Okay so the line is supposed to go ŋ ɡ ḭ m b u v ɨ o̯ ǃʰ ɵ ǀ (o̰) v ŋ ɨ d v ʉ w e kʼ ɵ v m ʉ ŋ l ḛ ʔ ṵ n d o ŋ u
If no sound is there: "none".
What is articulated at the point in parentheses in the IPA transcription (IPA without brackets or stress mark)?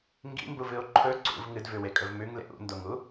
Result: ṵ